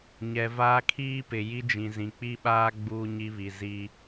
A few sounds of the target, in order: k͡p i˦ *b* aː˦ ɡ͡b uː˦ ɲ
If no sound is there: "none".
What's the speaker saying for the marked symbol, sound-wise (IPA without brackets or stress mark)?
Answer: ɓ